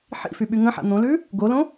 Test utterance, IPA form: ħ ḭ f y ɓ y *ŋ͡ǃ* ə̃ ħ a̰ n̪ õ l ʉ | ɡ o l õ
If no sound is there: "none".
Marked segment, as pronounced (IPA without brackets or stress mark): ŋ